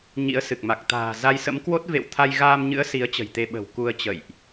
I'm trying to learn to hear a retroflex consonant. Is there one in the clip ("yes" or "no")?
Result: no